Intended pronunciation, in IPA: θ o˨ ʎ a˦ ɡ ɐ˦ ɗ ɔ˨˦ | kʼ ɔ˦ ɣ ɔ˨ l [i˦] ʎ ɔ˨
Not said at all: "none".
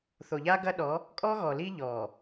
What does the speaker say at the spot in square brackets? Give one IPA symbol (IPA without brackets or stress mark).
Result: i˦